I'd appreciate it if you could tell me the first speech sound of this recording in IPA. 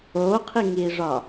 oː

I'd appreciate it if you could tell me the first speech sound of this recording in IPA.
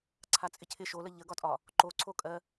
ǀʰ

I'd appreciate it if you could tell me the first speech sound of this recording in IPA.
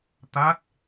t̪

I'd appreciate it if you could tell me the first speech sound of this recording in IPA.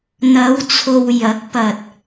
n̪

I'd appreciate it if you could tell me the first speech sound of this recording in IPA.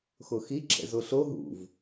x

